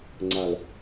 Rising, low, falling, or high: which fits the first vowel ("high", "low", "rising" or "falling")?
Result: low